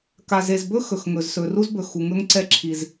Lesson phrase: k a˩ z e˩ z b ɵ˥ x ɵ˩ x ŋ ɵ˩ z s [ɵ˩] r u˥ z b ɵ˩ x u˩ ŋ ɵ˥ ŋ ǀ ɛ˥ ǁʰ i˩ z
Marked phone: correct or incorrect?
correct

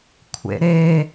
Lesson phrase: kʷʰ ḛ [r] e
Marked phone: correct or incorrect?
incorrect: ɾ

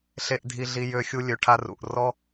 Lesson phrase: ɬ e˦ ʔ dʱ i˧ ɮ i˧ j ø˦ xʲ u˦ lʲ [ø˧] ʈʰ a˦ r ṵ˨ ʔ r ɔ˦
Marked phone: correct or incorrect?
correct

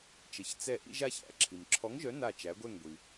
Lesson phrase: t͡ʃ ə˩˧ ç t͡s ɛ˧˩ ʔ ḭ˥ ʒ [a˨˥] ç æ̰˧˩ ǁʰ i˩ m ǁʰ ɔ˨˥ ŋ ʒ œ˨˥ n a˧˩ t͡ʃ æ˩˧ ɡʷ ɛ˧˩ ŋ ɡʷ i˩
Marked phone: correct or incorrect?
incorrect: a˥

